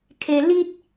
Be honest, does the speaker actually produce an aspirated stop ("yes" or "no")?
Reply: yes